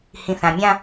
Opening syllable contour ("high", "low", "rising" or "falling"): low